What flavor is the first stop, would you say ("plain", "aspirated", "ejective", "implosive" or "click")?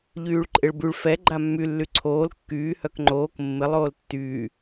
click